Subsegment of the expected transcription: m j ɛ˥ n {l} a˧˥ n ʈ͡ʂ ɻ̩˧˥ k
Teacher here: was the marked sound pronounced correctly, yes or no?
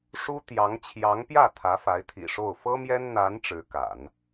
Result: no